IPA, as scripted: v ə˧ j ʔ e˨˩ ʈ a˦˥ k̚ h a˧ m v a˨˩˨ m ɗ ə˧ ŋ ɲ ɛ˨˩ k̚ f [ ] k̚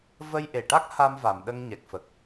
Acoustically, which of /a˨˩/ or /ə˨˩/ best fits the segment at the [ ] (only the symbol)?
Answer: ə˨˩